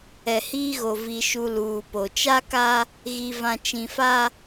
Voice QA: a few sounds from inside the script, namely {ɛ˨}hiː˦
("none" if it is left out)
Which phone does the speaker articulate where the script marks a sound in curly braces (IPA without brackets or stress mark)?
ɛ˨